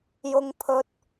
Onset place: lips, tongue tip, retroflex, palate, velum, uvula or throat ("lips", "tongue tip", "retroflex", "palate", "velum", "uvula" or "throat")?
palate